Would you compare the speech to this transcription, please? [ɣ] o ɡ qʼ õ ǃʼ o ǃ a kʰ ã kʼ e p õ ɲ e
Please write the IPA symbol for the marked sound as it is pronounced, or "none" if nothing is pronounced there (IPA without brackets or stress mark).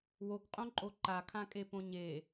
w